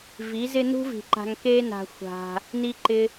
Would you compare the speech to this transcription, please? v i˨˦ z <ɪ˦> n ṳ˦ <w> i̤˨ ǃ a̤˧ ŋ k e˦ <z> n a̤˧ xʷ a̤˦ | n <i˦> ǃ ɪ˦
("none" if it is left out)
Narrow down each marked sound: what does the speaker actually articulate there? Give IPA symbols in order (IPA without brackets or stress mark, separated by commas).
ɪ˦, v, none, i˦